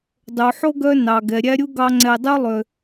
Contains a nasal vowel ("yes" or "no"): no